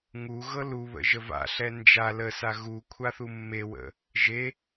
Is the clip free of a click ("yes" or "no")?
yes